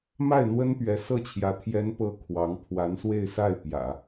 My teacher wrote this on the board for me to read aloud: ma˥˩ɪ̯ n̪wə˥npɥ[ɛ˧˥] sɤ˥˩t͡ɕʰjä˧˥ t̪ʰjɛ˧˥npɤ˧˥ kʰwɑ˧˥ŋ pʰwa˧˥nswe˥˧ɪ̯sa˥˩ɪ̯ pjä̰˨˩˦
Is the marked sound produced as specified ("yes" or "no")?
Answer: yes